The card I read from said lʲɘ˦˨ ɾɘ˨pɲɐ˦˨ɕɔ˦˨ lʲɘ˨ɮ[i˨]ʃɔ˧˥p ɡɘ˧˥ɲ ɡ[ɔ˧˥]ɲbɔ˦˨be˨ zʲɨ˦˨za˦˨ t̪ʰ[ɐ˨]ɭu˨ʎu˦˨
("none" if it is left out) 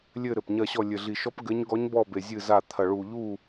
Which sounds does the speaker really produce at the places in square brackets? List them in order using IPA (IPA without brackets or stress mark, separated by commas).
i˨, ɔ˧˥, ɐ˨